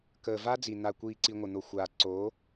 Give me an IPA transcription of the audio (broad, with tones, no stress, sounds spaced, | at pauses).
k əː˨ v a˦ d͡z i˨ n̪ a˨ kʷ iː˨ ǀ i˨ ŋʷ ə˨ n̪ o˨ xʷ aː˨ ǀ o˨˦